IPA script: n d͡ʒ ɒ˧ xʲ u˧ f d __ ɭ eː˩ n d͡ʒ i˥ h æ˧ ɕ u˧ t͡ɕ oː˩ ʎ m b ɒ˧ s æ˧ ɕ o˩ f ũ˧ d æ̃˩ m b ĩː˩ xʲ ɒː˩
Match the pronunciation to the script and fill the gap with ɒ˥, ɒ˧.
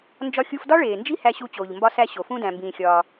ɒ˥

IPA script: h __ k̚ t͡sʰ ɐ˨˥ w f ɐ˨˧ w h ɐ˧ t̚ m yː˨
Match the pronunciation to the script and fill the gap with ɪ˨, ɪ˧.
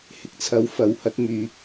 ɪ˨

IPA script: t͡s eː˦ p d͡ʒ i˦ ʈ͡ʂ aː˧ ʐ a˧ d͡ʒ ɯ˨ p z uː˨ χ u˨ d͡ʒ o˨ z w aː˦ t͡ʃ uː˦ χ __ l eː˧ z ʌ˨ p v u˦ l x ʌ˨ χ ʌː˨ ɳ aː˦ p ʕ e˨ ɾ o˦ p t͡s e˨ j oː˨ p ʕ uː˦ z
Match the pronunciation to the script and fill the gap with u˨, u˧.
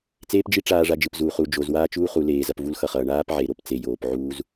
u˧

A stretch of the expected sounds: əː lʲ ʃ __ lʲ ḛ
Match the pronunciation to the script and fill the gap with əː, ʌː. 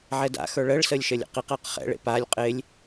əː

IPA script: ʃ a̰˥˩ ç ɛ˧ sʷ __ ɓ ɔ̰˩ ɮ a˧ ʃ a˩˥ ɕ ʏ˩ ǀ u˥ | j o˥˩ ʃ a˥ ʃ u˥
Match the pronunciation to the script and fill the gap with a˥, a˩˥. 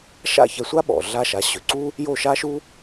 a˥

